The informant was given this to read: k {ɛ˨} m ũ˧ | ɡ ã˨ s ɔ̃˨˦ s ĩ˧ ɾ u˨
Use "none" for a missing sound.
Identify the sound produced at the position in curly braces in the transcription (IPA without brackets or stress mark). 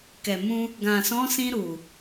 ɛ˨